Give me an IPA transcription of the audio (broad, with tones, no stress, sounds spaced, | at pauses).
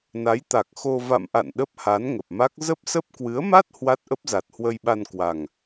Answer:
n a˨˦ j t̪ a˨˩ k̚ x o˧ v a̰˧˨ m ʔ a̰˧˨ n ɗ ə˦˥ p̚ h a˨˦ n ŋ ə˨˩ p̚ m a˦˥ k̚ z ə˦˥ p̚ s ə˦˥ p̚ k w ɨ˨˦ ə̯ m a˦˥ t̚ h w a˦˥ t̚ ʔ ə˦˥ p̚ z a˨˩ t̚ h w ə˧ j ɓ a˧ n k w a˨˩ ŋ